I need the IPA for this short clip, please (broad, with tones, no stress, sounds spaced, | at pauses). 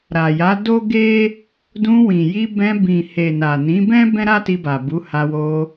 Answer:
ɾ a˨ j a˨˦ d o˦ ɡ e˦ | d ũ˧ w ĩ˨ j i˧ b ɛ̃˧ b ĩ˨ h e˨ n a˨ n ĩ˨˦ b ɛ̃˦ b ɛ̃˦ ɾ a˦ t i˧ b a˨ b u˨˦ h a˧ w o˧